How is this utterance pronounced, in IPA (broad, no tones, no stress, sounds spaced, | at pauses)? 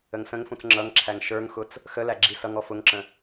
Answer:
ə ŋ s ə̃ ŋ f ũ t͡s ŋ͡ǁ ʌ ŋ ǁʰ æ ŋ ʃ ə˞ ŋ x ʊ t͡s | x ə l æ ɡ͡ǁ i s ʌ ŋ ɔ f ʊ ŋ ǁ ə̃